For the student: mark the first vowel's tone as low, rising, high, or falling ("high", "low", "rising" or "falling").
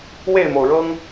falling